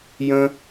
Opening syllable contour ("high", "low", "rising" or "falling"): low